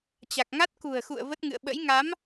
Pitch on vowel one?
low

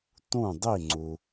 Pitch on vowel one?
falling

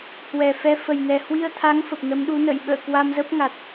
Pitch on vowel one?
low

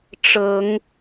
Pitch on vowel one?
rising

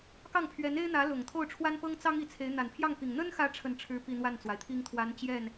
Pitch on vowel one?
falling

